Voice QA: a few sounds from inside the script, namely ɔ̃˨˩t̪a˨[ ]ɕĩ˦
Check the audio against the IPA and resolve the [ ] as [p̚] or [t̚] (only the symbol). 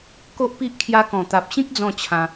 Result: p̚